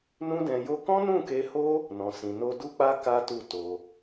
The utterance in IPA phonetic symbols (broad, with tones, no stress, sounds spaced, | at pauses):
n ũ˦ d ɛ̃˧ j o˦ k ɔ̃˦ n ũ˦˨ k e˧ h o˦ | n ɔ̃˨ s ĩ˨ n o˧ d u˦ k͡p a˦ k a˦ t u˦˨ t o˧